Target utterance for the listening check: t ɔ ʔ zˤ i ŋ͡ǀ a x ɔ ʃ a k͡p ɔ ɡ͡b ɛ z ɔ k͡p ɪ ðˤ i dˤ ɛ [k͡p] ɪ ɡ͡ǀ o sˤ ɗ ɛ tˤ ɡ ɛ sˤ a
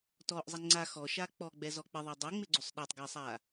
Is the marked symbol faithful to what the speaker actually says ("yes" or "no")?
no